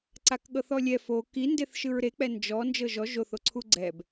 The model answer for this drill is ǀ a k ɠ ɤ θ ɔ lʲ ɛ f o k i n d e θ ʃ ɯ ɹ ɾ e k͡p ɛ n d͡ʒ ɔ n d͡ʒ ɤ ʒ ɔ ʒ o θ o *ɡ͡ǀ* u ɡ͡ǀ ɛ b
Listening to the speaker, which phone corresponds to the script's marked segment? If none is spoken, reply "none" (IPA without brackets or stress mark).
ǀʰ